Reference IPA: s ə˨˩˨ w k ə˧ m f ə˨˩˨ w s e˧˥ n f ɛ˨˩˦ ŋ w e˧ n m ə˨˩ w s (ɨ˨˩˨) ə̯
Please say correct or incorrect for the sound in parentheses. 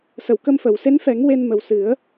incorrect